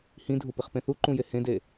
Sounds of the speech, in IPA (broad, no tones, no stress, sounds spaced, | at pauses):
h ĩ dʱ u p i χ p ẽ θ u ǃ ũ j e h ẽ d e